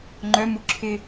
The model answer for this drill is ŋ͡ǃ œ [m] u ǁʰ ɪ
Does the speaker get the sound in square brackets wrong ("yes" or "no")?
no